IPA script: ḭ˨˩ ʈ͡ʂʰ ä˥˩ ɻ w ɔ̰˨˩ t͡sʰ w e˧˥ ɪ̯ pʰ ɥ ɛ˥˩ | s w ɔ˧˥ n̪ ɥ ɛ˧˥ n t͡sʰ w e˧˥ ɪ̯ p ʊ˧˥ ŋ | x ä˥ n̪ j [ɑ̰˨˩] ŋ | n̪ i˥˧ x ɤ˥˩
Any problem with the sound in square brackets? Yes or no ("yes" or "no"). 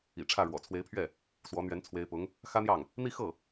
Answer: yes